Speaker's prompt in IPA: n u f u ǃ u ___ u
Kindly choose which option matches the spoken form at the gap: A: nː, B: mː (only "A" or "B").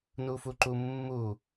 B